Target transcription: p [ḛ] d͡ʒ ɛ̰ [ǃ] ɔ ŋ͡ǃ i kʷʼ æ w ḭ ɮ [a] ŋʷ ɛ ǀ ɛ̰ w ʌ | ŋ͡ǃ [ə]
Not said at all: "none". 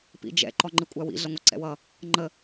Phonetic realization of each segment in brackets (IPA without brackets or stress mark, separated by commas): ḭ, ǃ, ʌ, ə